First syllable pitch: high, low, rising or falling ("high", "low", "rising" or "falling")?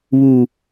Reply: low